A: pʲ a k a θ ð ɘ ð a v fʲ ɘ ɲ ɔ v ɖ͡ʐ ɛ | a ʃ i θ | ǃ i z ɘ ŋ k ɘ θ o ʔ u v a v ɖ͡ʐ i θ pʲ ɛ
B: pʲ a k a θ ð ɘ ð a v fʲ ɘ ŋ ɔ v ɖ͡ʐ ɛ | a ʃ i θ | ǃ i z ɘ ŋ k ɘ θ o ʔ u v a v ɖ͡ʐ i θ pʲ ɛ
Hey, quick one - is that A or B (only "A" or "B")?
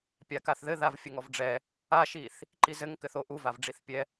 B